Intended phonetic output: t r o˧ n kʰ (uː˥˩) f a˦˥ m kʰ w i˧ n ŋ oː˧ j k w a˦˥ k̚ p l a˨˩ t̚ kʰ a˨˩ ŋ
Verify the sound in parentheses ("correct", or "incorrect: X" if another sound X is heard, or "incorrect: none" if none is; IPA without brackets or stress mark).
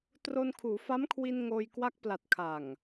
incorrect: uː˩˦